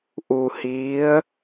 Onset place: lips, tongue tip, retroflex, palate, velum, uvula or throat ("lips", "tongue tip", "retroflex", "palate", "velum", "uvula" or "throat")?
throat